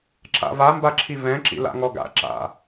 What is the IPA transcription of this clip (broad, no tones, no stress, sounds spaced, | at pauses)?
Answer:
ǁ a̰ v a m b a ǁʰ i v ɛ̃ ǁ ḭ l a̰ ŋ ɔ ɡ a̰ ǁ a̰